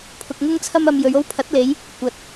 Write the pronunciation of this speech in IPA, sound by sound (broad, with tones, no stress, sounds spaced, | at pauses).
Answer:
pʰ ʊ˧ k̚ ŋ ʊ˥ ŋ t͡sʰ ɐ˥ m ɐ˧ m j ɵ˨˧ ɥ o˥ w pʰ ɐ˨˥ t̚ l e˨˧ j | kʷ ɐ˨ t̚